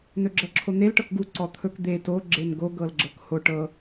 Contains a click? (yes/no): yes